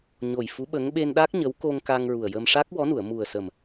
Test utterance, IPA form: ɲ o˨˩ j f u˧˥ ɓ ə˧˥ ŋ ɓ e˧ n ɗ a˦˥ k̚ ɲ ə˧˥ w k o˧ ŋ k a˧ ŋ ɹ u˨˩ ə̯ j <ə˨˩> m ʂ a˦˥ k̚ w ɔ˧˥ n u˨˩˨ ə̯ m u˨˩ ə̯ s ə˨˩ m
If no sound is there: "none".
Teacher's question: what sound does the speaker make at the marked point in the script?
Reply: ə˧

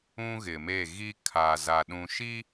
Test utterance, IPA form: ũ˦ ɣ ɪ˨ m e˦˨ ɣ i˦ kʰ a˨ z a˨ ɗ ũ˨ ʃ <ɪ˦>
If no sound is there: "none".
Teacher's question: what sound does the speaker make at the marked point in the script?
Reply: i˦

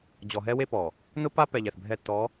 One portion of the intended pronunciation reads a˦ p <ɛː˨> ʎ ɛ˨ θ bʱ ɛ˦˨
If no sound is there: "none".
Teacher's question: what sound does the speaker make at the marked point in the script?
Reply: ɛ˨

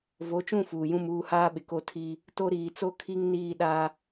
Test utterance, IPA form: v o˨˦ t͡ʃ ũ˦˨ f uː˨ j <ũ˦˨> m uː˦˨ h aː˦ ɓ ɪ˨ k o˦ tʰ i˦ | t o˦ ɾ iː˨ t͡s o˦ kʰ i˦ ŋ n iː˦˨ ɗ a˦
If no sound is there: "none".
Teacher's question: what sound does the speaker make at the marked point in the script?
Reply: ũ˦˨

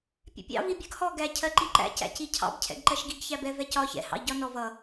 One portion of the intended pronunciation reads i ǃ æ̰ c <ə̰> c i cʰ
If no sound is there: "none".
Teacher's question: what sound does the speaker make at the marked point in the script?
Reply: æ̰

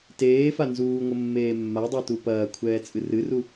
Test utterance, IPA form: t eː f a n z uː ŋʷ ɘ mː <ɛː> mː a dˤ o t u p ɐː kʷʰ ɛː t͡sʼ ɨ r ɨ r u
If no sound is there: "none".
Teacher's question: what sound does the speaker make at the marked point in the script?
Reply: eː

